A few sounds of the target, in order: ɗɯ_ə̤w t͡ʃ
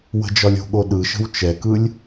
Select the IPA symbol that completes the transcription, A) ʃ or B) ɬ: A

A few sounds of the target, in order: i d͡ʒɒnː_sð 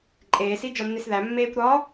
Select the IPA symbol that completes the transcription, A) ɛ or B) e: B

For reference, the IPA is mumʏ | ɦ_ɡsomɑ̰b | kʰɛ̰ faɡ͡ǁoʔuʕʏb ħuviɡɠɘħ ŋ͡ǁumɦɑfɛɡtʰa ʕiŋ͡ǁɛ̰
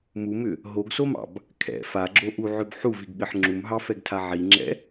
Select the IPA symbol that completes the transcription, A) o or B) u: A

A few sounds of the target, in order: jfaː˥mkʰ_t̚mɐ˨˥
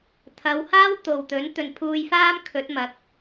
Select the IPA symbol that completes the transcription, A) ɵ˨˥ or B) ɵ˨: A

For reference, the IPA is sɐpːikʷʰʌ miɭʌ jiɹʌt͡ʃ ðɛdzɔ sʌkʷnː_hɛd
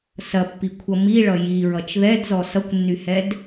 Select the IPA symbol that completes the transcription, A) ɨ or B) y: B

